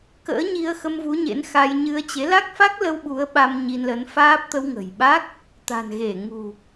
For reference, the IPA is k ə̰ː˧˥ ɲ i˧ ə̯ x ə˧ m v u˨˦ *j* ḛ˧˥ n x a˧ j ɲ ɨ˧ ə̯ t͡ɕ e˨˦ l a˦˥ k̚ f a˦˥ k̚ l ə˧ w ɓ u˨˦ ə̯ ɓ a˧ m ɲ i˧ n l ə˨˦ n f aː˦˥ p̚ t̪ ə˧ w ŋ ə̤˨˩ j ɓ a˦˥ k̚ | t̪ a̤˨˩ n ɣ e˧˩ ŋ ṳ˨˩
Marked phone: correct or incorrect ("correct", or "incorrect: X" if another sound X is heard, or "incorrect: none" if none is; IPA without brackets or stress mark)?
incorrect: ɲ